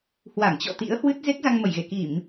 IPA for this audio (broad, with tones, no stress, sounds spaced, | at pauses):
h w a˧˩ ŋ t͡ɕ ɔ̰˧˨ t̪ ḭ˧˥ ə̯ h w ɨ˦˥ t̚ z e˦˥ k̚ z a˧ ŋ m ə˧˩ j ɣ e˧˩ k i˧˩˨ m